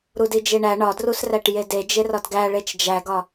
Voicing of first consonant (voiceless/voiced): voiced